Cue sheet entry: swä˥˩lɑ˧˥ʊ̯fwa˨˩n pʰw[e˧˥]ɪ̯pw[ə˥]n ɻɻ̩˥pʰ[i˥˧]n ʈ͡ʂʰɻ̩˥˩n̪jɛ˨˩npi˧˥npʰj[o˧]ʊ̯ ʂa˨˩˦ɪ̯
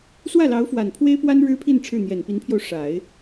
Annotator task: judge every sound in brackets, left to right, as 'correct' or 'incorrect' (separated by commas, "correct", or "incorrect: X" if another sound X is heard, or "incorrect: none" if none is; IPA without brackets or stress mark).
incorrect: e˥, incorrect: a˥, correct, correct